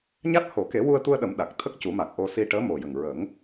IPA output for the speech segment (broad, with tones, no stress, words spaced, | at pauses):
ɲa˦˥t̚ho˨˩˦ ke˨˩˦wu˧ə̯t̪u˧ə̯ɗə˨˩˦m ɗa˨˩k̚ t̪ʰə˦˥k̚ cu˨˩˦ma˨˩k̚ ʔo˧si˧ ʈəː˧˥mo˨˩jə˨˩ŋ ɹə˨˩˦ŋ